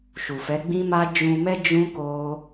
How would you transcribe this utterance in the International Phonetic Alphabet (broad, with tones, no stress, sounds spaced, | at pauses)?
ʃ u˨ f ɛ˨˦ ɡ͡b ĩ˦ m a˦ d͡ʒ ũ˧ m ɛ˦ d͡ʒ ũ˦ k o˦